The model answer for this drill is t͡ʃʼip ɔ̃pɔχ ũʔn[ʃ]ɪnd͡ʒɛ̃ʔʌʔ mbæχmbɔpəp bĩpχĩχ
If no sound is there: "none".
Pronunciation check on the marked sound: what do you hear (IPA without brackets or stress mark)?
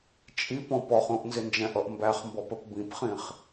z